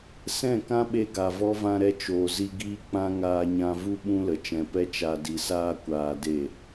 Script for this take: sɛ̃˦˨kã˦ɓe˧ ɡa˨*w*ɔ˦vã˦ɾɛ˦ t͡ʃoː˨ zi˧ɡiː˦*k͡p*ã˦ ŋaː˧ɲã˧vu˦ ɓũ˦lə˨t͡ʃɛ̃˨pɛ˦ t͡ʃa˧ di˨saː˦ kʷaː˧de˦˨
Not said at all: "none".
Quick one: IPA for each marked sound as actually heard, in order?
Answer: v, k͡p

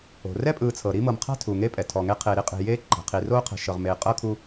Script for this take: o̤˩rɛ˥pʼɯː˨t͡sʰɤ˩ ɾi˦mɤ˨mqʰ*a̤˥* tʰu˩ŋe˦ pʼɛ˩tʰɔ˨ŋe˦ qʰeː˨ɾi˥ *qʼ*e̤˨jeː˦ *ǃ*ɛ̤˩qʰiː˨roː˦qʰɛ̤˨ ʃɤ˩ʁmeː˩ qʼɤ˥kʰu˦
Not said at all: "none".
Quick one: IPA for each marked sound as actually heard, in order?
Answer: a̤˥, qʼ, ǃ

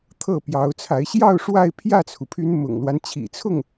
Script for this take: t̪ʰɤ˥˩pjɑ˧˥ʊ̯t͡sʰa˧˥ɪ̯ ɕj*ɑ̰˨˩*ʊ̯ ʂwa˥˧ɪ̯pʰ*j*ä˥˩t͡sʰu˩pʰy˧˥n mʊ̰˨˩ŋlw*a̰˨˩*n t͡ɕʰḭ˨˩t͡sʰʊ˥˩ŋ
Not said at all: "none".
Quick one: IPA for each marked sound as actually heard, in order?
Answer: ɑ˥˧, j, a˦

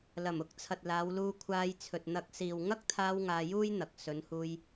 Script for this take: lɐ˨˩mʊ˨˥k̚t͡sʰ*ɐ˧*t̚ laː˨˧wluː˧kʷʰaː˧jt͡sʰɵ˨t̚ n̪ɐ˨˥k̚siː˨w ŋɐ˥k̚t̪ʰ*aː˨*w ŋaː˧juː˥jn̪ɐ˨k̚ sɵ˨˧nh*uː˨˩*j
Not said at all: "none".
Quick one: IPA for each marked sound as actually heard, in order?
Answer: ɐ˨, aː˧, uː˧

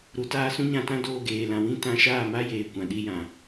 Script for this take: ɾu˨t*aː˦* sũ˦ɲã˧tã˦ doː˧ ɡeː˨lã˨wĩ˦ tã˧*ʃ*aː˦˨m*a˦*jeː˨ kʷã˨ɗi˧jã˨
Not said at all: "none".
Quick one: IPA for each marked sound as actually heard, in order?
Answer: aː˧, ʃ, a˦

